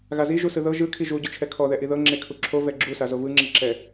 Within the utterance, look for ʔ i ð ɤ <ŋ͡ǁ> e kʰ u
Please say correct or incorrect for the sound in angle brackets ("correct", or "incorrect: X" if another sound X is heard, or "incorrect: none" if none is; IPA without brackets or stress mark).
correct